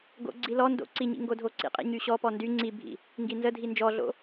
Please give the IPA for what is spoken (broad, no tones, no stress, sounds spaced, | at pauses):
ɡ o̰ ɡ͡ǀ i l ɔ n d o̰ ǀ i ɲ ḭ ŋ ɡ o dʱ o ǀ ḭ qʼ ḭ ɲ y ɕ ɔ p ɔ n d y ŋ͡ǀ i bʱ ḭ | ŋ ɡ i n z ə dʱ i n d͡ʒ ɔ ɮ o̰